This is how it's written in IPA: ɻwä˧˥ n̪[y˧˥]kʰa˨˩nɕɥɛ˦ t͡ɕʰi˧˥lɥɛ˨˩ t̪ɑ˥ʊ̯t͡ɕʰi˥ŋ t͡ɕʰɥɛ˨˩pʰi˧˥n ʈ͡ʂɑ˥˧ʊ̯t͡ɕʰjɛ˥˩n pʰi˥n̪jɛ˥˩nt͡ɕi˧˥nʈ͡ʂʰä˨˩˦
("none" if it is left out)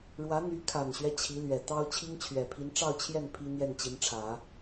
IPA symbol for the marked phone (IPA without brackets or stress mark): y˧˥